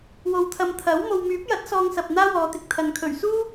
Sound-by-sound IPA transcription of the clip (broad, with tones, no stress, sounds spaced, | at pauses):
w o˨ w t̪ʰ ɐ˨ m t̪ʰ ɐ˨˥ w m o˨ w m yː˨˥ p̚ j ɐ˨˥ t̚ s ɔː˧ ŋ s ɐ˨ p̚ n̪ aː˥ w ɔː˨˧ t̪ ɪ˨˥ k̚ t̪ʰ ɐ˨ n kʰ ɵ˨˩ ɥ s uː˥